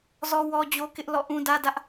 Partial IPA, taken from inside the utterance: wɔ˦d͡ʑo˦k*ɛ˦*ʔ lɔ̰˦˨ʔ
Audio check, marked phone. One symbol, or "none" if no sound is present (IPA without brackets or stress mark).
ɪ˦